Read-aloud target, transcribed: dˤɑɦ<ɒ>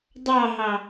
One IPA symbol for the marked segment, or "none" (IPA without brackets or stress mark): ɑ